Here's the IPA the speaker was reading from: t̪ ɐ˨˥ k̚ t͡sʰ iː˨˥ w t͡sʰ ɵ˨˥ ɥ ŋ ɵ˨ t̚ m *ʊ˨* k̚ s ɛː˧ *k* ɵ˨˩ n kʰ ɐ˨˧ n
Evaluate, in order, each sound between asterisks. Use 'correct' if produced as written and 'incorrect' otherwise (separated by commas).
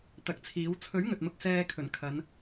incorrect, incorrect